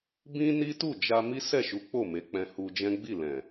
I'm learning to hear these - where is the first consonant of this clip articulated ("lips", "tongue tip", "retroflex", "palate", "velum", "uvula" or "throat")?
lips